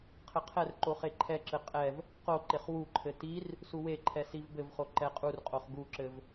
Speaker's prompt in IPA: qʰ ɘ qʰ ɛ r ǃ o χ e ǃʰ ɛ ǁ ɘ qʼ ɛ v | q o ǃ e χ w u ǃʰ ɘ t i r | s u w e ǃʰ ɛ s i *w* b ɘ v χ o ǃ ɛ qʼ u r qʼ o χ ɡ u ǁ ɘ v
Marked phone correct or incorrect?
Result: incorrect